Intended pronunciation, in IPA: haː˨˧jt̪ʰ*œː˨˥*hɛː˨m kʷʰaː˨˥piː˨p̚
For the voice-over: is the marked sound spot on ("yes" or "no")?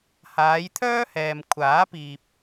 no